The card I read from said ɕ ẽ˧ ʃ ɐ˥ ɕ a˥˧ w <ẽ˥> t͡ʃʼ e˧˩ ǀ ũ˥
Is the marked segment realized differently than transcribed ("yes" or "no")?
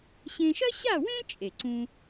no